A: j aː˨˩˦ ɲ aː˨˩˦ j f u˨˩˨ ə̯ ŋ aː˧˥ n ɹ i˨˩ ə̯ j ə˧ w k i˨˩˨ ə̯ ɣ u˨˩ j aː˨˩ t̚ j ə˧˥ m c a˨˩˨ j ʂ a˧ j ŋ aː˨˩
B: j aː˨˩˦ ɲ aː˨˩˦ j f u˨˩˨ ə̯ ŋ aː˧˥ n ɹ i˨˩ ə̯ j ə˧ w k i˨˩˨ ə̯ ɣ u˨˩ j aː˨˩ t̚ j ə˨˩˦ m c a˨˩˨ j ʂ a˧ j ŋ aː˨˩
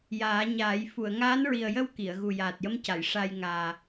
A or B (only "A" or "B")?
A